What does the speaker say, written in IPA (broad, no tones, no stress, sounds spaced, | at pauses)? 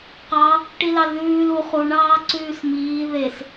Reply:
q ɑ | ʈ i l ɑ l ð ʉː l u χ u ɳ ɑː ǀ ʉː s m iː ð e s